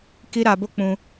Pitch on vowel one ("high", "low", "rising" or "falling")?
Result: high